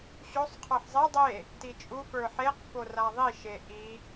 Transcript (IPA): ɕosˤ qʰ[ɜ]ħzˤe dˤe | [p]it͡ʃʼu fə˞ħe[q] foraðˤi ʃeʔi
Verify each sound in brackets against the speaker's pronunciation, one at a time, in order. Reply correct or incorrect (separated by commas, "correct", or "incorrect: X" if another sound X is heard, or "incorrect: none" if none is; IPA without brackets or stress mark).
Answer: incorrect: ə˞, incorrect: t, correct